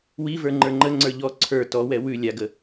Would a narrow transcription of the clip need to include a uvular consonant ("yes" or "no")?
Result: no